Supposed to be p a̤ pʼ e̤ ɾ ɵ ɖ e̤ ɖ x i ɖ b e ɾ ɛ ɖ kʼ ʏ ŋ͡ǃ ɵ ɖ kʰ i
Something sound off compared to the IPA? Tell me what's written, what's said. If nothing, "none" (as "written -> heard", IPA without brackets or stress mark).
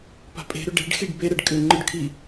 none